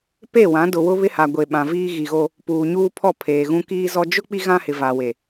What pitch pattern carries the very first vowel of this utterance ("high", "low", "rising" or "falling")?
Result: falling